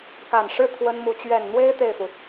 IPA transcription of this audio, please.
k a˨˩ n ʂ ɻ̩˥˩ t̪ʰ w ə˥ n m u˧˥ t͡ɕ ɥ ɛ˨˩ n n̪ w e˥ ɪ̯ t̪ e˥˩ ɪ̯ f u˩

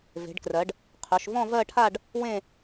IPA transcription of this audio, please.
v e̤˩˧ ɖ k r ɜ˩˧ ɖ | qʰ ɵ˩˧ ʃ v ɔ̃˥˧ v ɜ˥˧ ʈʰ a˥˧ ɖ | w ẽ˥˧

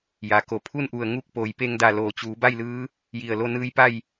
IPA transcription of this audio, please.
j a˩˧ k o˩ pʰ u˥˨ n ʔ u˧˩ ə̯ ŋ u˥˨ k̚ p oː˩˧ j p e˧ ŋ d a˧˩ l oː˩ t͡ɕ uː˩˧ b a˥˨ j l ɯː˧˥ | j i˧˩ ə̯ l o˥˨ n ɯː˧˥ j p a˥˨ j

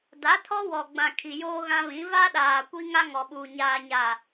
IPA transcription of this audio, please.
d a˨˦ tʰ ɔ˦ w ɔ˨ ɡ͡b ã˨ kʰ i˨ j oː˦ ɣ ã˦ β ĩ˨˦ v a˦ ɗ aː˨ kʷ i˦ ŋ a˦ ŋ ɔ˨ ɓ uː˨ ɲ aː˨ ɲ a˨

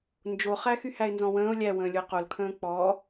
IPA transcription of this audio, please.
n d͡ʒ o χ æ x y h æ ɪ̯ n z ɔ̃ w ə̃ː ʊ̯ lʲ æ w ə̃ː lʲ ʊ ɪ̯ q o l kʰ ə̃ː k͡p ɔ

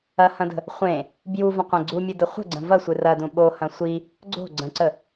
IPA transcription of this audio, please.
ɐ h ɐ̃ d ə̤ | χʷ ẽ | b j u v ə̃ qʷ ẽ ɡ͡ǀ u mʲ ɨ d ə χʷ ə̤ ɡ͡ǀ ə̃ v ɐ sʷ ɨ r ɐ d ũ ɓ o h ɐ̃ sʷ i | ɡ͡ǀ o̤ ɡ͡ǀ ə̃ ǀ ə

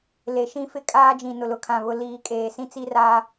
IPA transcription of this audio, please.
l e˨ ʃ ĩ˦ f ɪ˦ kʼ aː˦ d͡ʒ ĩ˨ n ʊ˨ l ʊ˨ kʰ ã˨ β ʊ˨ l iː˨ kʼ eː˨ s ĩ˦ t͡s i˦ r aː˦

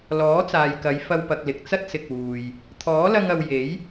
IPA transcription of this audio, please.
l ɔː˨˥ t͡s aː˨ j k ɐ˨˧ j f ɐ˧ w p ɐ˨ k̚ l ɪ˨ k̚ t͡s ɐ˥ t̚ s ɪ˨ k̚ w uː˨ j | t̪ʰ ɔː˨˥ l ɐ˧ ŋ ɐ˨ w j e˨˥ j

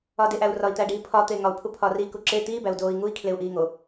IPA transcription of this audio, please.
ɒ d e ʔ æ u̯ r ɒ i̯ t̪ æ ɖ i pʰ ɒ t̪ e ŋ ɒ u̯ pʰ u pʰ ɒ r i k u ǁ e t̪ iː b æ u̯ d oː i̯ ŋ u i̯ kʰ l e u̯ ʔ iː ŋ o

